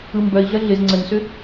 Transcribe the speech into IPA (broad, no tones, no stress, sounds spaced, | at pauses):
ɯ m b œ i̯ ɮ ə ɮ ɪ z ŋ͡ǀ ə n s ʏ